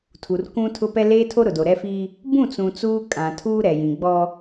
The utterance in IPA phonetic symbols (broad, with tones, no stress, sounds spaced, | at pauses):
tʰ u˨ r k ũ˦ tʰ ʊ˦ p ɛ˦ l eː˦ tʰ o˦ ɾ ʊ˨ d o˨ ɾ ɛ˦ f i˦ | b ũ˦˨ t͡s ũ˨ t͡s uː˦ kʼ ã˨ tʰ uː˦ ɾ ɛ˨ j ĩ˨ ɡ͡b ɔ˦